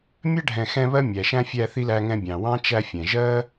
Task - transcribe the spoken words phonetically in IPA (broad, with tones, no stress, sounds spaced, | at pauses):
mʲ ɜ˥ ɖʱ ɛ̃˨ x ɛ̃˦ β ɜ˥ mʲ æ˩ ʃ æ̃˥ fʲ æ˦ θ i˥ l æ˦ ŋ ɛ̃˦ bʲ ɑ̃˩ w ɑ̃˥ t͡ʃ æ˦ fʲ ɛ̃˩ ʒ ɜ˥